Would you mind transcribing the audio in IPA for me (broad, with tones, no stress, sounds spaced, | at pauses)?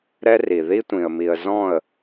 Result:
ɾ ɛ˦ r i˨ ð i˦ tʷ ĩ˨ ə̯ m i˨ ə̯ z ɔ̃˦˨ ə̯